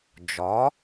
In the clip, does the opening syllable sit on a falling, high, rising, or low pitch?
rising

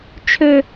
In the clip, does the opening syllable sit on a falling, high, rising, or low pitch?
high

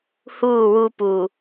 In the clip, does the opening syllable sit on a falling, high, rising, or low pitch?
falling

